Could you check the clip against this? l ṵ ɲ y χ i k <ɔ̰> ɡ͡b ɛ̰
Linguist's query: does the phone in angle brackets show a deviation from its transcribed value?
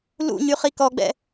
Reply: yes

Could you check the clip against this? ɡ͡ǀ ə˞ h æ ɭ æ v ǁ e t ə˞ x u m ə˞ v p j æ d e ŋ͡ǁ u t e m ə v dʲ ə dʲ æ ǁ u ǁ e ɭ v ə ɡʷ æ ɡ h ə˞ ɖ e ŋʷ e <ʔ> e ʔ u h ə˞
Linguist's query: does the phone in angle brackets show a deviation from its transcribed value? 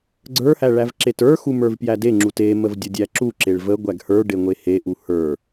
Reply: yes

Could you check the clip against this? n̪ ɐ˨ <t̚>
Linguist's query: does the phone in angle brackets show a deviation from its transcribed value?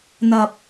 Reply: yes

